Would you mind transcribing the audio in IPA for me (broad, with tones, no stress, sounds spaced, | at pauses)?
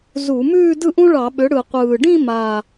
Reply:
z u˧˩˧ m ʉː˥˧ d ɯ˥˧ ʔ ũ˥ ɭ ɑ˧˩˧ ɓ ʏ˩˥ ɽ ɯ˨˩ qʷ ɯː˨˩ ɖ ĩ˥˧ m a˨˩